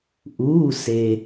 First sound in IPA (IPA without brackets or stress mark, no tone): ʔ